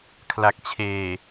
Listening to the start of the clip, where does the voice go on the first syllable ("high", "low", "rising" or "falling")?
low